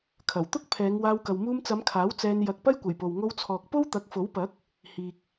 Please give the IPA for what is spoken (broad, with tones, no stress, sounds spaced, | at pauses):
kʰ ɐ˨˩ w t̪ ʊ˥ k̚ pʰ ɛː˨˧ ŋ w aː˧ w k ɐ˨ w m uː˧ m t͡s ɐ˨˧ m kʰ aː˨˥ w t͡s ɛː˧ n j ɐ˧ k̚ p ɐ˥ j kʷ ɐ˨˩ j p o˨ w ŋ o˧ w t͡sʰ ɔː˨ k̚ p o˥ w t̪ ɐ˨˥ k̚ f o˨˥ w p ɐ˨˥ k̚ | h iː˨ k̚